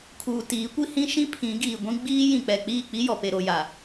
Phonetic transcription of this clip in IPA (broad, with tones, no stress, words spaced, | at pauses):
kʰuː˨tiː˨˦ kʷi˦hĩ˦ʃĩ˦ pʰĩ˨˦ɡiː˨ɡʷĩ˦ ɡ͡biː˦jĩ˨k͡pɛ˨ k͡piː˦˨k͡pi˦jɔ˨pe˨ ɾo˨ja˨